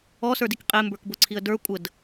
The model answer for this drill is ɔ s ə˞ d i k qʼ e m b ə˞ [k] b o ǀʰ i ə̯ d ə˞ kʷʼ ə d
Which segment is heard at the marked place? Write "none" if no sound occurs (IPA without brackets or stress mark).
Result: k